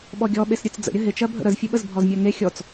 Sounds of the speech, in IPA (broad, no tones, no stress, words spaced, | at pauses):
ɓɔɡʲɔ ɓesɾʲɨt͡s d͡zə̰ɾʲə ɦɪt͡ʃɜ bʱə̰ɾəzfʲɨɓəz bʱɔzmʲɜŋe xʲɔt͡s